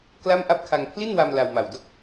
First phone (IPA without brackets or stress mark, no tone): k